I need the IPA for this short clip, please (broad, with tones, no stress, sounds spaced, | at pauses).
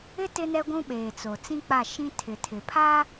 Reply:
ɪ˦ t ɪ˦ n ɛ˦ ɡʷ ũ˦ ɓ eː˨ t͡s o˨ t͡s ĩ˦ k͡p a˦˨ ʃ ĩ˦ tʰ ɪ˨ tʰ ɪ˨ pʰ aː˦